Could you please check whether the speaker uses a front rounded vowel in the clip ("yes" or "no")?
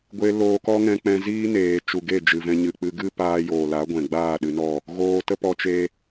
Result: no